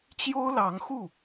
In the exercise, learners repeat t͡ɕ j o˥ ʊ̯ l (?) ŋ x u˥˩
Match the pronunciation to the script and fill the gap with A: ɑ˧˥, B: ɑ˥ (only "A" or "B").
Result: A